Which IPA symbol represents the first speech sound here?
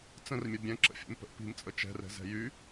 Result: t͡s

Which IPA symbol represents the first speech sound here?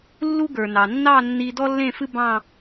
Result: lː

